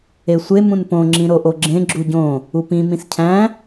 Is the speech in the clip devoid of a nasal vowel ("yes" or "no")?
no